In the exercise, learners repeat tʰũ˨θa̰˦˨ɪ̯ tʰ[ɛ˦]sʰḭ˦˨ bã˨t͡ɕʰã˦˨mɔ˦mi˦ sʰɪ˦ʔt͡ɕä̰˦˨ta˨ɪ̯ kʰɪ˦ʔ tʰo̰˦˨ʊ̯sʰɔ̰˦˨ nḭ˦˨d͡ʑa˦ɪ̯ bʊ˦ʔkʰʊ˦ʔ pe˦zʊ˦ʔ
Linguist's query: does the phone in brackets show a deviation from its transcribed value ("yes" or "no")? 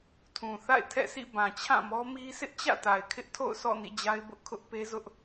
yes